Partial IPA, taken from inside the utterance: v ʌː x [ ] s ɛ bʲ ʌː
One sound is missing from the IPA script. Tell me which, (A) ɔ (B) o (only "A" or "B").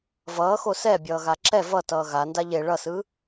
B